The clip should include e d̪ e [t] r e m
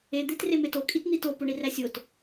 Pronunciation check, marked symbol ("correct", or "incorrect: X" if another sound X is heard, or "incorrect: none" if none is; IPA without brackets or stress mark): correct